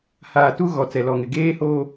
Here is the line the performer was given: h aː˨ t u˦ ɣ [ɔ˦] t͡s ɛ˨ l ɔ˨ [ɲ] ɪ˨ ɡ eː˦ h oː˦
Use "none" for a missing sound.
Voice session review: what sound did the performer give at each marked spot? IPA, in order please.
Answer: ɔ˨, ŋ

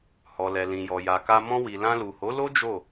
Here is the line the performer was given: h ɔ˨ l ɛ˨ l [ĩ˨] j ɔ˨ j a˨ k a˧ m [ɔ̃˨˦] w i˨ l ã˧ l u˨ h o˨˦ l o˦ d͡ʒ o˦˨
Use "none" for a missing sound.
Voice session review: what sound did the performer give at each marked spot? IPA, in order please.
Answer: ĩ˨, ɔ̃˧

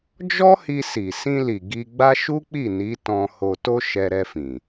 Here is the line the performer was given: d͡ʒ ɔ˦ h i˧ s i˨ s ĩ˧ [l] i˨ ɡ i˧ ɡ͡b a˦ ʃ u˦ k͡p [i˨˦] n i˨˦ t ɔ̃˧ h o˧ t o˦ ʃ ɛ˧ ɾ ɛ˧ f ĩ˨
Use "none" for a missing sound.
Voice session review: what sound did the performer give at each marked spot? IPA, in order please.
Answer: l, i˦˨

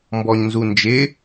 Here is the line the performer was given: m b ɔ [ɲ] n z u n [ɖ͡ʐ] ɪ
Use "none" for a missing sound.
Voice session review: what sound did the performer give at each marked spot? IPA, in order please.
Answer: ɲ, d͡ʒ

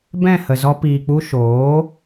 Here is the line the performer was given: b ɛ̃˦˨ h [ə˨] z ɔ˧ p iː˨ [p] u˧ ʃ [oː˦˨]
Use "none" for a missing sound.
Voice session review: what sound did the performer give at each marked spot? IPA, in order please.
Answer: ə˨, k͡p, oː˨˦

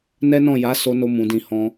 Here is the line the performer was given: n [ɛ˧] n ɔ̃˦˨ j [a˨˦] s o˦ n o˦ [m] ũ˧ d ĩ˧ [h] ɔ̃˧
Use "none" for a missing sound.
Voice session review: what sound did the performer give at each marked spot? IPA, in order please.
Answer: ɛ˦, a˨˦, m, h

